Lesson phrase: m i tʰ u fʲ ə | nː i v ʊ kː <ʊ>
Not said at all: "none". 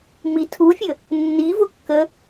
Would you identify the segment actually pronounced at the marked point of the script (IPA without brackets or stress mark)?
ə